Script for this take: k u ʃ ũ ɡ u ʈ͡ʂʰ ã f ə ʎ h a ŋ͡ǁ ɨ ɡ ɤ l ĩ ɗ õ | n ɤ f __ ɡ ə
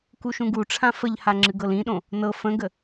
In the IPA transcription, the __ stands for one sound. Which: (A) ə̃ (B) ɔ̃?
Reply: A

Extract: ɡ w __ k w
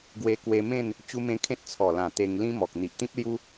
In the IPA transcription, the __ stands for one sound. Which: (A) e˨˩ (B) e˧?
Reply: B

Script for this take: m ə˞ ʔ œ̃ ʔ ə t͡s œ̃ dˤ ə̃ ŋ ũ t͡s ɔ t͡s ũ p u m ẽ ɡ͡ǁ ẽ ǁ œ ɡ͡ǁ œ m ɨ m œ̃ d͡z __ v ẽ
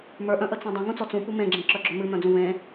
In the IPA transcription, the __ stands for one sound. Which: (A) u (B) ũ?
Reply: B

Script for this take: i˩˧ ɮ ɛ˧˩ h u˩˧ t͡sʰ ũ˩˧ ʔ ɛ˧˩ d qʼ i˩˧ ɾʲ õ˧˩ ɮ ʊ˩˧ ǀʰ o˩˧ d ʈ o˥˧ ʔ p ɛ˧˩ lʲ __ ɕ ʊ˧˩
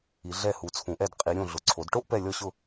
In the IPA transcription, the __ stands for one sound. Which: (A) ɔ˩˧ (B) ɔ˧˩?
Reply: B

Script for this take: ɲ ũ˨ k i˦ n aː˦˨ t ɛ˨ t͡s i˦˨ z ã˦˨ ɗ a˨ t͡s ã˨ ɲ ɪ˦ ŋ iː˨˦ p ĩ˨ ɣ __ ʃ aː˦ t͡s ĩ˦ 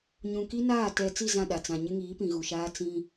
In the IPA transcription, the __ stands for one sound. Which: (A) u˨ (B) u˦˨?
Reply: A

